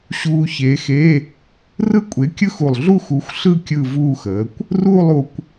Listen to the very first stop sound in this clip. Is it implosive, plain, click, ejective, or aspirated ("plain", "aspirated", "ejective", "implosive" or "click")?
ejective